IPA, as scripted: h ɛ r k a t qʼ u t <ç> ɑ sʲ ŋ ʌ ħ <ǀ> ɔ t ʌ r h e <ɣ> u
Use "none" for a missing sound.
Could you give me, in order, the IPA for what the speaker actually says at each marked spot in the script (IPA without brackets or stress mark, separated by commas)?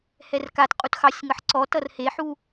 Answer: x, ǀ, ħ